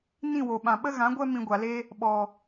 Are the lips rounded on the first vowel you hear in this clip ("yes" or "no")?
no